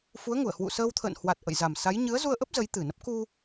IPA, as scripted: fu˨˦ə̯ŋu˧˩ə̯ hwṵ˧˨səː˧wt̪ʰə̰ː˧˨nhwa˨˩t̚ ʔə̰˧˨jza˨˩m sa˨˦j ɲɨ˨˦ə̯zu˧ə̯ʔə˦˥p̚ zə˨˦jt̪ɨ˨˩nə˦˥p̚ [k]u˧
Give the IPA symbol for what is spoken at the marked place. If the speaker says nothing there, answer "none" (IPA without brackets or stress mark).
k